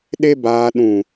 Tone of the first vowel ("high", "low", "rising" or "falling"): high